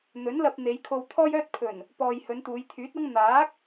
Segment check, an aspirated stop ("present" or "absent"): present